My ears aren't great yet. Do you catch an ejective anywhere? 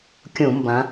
no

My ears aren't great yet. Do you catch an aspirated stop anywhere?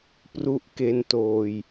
no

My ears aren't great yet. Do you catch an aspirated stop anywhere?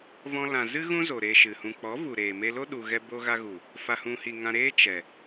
no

